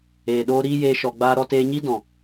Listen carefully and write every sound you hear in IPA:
eː˨ ɗ oː˦ ɾ iː˦ j eː˧ ʃ ɔ˨ ɡ͡b aː˧ ɾ ɔ˧ t eː˧ ɲ i˦ d ɔ̃˨

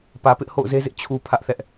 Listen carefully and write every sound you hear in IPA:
p ä˨ p ɪ˦ ʔ h o̰˦˨ ʊ̯ z e˦ z ɪ˦ ʔ t͡ɕʰ u˨ pʰ ä˦ ʔ θ ɛ˦ ʔ

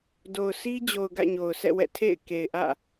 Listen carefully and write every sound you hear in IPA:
d o˨ ʊ̯ s i˦ d͡ʑ o˨ ʊ̯ ɡ ä̰˦˨ ɲ o˨ ʊ̯ sʰ ɛ̰˦˨ w ɛ̰˦˨ tʰ ḛ˦˨ ɪ̯ k e˨ ɪ̯ ʔ ä̰˦˨

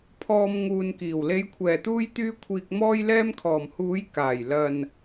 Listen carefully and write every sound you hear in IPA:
pʰ ɔː˨ m ŋ uː˨ n k iː˨˩ w l e˨˧ j kʷʰ ɛː˨˩ t̪ uː˧ j t̪ yː˧ kʷʰ iː˨ k̚ m ɔː˧ j l ɛː˧ m kʰ ɔː˨˩ m h uː˨˥ j k aː˨˩ j l ɐ˨ n

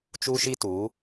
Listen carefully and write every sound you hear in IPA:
t͡ʃ u˧ ʃ i˧ t u˨˦

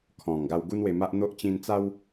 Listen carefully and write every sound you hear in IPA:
kʰ ɔ̃˨˩ ŋ ɡ a˧ w ɡ u˦ n w e˧ m a˦ ʔ n̪ o˦ ʔ t͡ɕ ĩ˧ n t͡s a˦ w

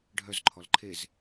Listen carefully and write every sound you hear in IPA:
ɖʱ œ z ǃʰ ɔ l ǃʰ e z

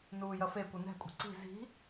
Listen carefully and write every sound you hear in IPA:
n uː j ɐ f e kʷ ɨ n ɛ̤ kʷʼ i̤ ǀ i̤ z i̤

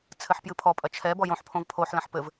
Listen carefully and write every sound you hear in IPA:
t͡sʰ ɘ ħ p j ɨ pʰ ɔ pʼ ɐ t͡ʃʰ ɛ b ɔ j õ ħ pʰ õ v pʰ o ħ l ɐ̃ ħ p ɘ v

